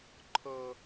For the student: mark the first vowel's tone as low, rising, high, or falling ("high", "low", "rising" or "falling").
low